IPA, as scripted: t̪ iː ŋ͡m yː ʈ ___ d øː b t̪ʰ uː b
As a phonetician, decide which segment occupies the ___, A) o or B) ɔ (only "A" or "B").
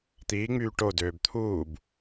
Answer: A